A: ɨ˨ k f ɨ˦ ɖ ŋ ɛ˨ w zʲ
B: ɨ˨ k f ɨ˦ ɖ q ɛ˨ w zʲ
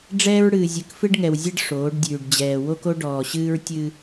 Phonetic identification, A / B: A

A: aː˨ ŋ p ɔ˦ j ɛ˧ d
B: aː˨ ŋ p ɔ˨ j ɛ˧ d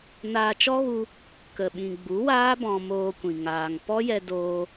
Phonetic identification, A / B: A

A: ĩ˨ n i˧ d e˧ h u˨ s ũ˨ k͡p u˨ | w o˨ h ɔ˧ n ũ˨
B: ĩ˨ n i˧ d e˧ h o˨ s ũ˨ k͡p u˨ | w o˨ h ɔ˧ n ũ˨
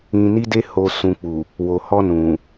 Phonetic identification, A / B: B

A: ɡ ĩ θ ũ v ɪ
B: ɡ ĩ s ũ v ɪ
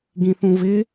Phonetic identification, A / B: A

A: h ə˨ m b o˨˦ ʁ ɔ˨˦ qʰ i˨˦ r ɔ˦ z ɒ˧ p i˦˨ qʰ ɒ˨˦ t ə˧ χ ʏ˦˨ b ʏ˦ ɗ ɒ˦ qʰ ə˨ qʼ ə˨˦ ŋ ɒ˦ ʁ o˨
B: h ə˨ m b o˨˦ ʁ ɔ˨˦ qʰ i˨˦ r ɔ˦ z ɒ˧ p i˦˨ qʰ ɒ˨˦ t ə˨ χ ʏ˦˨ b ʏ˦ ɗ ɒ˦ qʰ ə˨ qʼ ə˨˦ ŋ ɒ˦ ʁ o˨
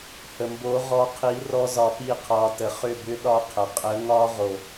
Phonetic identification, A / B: B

